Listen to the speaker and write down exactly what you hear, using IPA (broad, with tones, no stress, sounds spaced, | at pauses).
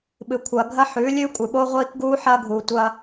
ɓ ɨ˨ kʷʰ ɐː˨ ɡʱ ɐ˦ ħ ʉː˨˦ lʲ ʉː˦ kʷʼ ɨ˨ ɓ o˦ ʁʷ iː˦ k ɡ uː˦ ħ ɐː˦ ɡʱ uː˨ tʷ ɐː˦